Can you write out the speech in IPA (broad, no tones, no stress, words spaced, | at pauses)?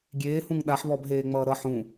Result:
ɡʲeːhũŋ ɗaħβɔbɦeːŋ͡mʌː ɾʌ ħũ